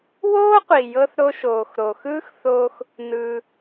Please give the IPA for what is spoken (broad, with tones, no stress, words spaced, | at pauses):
woː˥qʷi˩jɤ˧θ ɾo˧ʃoː˩xɾo˩xɯː˥x θoː˧x | nɯː˩